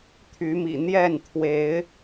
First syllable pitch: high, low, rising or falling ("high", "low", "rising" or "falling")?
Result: rising